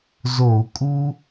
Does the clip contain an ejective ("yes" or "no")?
yes